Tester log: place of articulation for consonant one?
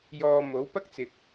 palatal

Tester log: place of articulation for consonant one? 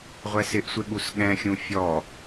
uvular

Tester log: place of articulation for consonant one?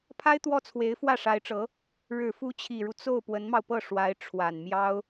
labial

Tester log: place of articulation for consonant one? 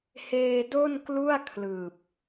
glottal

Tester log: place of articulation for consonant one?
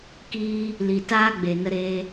velar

